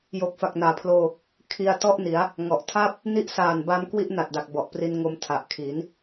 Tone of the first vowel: low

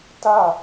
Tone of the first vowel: falling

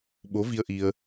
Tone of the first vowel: rising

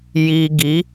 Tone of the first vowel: high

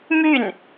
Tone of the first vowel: falling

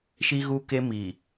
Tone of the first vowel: high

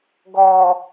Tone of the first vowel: low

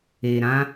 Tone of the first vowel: low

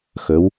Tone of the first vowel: rising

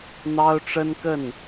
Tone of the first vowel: high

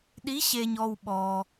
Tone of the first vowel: rising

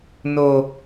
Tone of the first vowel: low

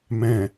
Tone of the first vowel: low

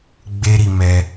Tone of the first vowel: high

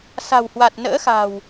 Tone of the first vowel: low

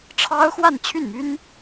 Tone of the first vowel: high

